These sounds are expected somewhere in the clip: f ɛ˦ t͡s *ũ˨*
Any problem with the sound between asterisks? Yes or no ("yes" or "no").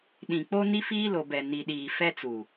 yes